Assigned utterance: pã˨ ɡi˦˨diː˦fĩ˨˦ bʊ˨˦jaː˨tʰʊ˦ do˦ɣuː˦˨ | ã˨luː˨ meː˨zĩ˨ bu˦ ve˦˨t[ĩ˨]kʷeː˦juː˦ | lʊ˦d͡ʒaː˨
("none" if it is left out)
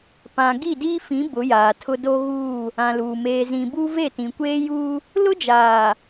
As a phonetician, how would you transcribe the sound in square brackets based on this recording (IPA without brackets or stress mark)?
ĩ˨